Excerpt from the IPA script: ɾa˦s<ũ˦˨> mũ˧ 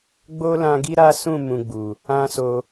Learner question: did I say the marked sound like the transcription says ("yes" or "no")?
yes